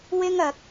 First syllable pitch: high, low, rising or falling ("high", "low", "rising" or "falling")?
high